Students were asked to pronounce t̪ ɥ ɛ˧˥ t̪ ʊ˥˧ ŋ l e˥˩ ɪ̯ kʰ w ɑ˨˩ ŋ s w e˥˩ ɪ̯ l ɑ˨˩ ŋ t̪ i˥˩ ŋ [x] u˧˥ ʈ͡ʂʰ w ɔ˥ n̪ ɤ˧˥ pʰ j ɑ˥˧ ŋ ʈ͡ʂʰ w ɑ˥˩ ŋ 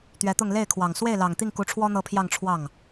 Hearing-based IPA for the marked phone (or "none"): k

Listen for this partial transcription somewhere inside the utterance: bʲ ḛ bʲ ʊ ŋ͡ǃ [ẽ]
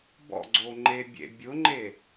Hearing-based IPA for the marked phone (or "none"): e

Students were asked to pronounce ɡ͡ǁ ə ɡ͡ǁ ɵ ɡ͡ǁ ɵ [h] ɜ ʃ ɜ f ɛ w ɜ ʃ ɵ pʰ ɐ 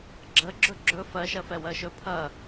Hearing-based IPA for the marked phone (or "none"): f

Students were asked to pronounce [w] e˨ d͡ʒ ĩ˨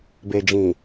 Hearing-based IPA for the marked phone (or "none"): b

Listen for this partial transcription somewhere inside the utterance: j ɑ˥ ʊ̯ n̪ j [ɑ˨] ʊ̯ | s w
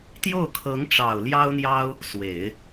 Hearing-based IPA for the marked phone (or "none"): ɑ˥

